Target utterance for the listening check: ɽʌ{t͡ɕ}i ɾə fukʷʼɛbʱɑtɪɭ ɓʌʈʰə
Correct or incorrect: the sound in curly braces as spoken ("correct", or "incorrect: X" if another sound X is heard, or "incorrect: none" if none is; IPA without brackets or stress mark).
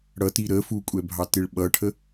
incorrect: t